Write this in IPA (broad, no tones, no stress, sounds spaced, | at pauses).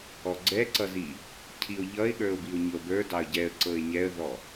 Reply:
ɔ ɡ͡ǀ ɛ ǀ ʌ z i | cʰ i ʊ̯ ʎ ʌ ɪ̯ ɠ ə˞ ʊ̯ b i ʊ̯ ɲ ɤ b ə˞ d ɑ ə̯ ɟ ɛ ə̯ ǀ ɤ ɪ̯ ɲ ɛ ə̯ ð ɔ